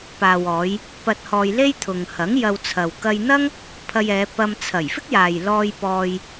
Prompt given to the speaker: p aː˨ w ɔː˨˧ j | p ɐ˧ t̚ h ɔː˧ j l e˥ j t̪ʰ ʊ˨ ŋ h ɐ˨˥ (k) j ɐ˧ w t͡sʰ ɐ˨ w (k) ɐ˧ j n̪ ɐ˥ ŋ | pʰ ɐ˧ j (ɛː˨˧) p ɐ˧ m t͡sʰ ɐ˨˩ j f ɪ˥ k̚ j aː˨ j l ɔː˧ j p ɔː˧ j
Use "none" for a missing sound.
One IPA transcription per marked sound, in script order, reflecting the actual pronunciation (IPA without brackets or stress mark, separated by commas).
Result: ŋ, k, ɛː˨˧